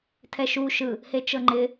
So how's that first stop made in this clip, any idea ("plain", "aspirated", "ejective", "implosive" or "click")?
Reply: aspirated